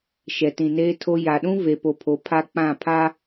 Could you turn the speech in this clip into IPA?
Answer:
ʃɛ˨tĩ˨neː˦tʰo˦ ja˨ɗũ˦ ve˦po˦pʰo˦ pʰa˦k͡pã˦˨pʰa˦

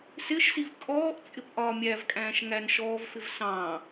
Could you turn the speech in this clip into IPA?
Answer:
sɪʃsiv kʼɔːʔ t͡sʼɪpʔɒːmʲævkʼæ̃ːʃ ŋænʃɔːvfɪv sɑ̃

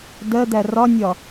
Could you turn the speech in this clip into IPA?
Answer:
dɜd̪æ rɒnʲɒ

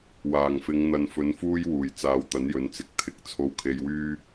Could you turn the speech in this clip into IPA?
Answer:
waː˨˩ŋfɪ˨˧ŋ n̪ɐ˨nfɵ˨˥nfuː˥jwuː˨˩j t͡saː˨˧wt̪ɐ˨˥njɵ˨˥nt͡sɪ˨˥k̚ t̪ʰɪ˨˥k̚ t͡sʰo˧wkʰe˧jwyː˥

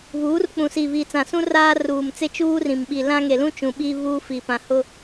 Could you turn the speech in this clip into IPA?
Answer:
βuː˨˦r k͡pũ˨siː˨βiː˨t͡sã˨ sũ˦ raː˦ruː˨mt͡se˦ t͡ʃuː˦rĩ˨m ɓi˨lã˦ŋe˨lũ˦ t͡ʃũ˨ɓi˦ βuː˦fi˨pã˨ hʊ˦

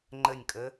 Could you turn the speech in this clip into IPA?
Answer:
ŋ͡ǃɘnʲkʼɘ

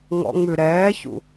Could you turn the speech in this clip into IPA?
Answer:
ŋɔ̰ŋ͡mʉ ɾɛːçṵ

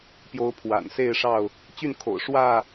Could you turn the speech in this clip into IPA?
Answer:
pjo˨˦ʊ̯pʰwa̰˨˩nse˥˨ɪ̯ʂɑ˥˨ʊ̯ | t͡ɕy˥˨nkʰo̰˨˩ʊ̯ ʂwä˥˨

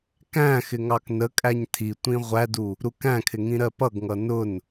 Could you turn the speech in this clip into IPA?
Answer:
kæ̃ xɪŋɑknəkʼæɲ tʰi tʷĩʁʷædu | ɾukæ̃kʰɪ ŋĩɾɜpʌɡŋʌ nʊn

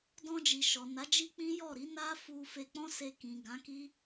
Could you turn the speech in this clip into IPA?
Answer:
dɔ̃˧d͡ʒi˨ ʃɔ˨ na˨˦d͡ʒi˦k͡pĩ˦jɔ˦˨ ɾi˨˦na˦fu˧ fe˧k͡pɔ̃˦se˧ kĩ˨ ɡã˨˦ki˦

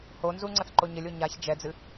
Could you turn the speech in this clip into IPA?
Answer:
honzu ŋ͡ǀɐθǃoɲɘlʲ oɲaç d͡ʒɛd͡zɨ

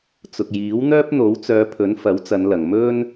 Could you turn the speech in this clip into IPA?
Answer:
t͡sʊ˨k̚jiː˨˥w n̪œː˥p̚n̪o˨˥wt͡sœː˨˧pʰɵ˨˥n fɐ˨˥wt͡sɐ˨˧nlɐ˨ŋ mɵ˥n

